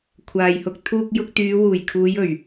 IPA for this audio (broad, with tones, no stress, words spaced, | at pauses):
kʷʰaː˨jhʊ˧k̚ t̪ʰuː˧k̚jʊ˧k̚t̪yː˨˧ wuː˨˩jkʰuː˨˧j ɵ˨˩ɥ